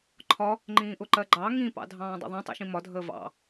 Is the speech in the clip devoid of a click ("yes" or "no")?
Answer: no